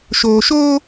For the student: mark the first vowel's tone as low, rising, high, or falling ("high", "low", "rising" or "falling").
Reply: low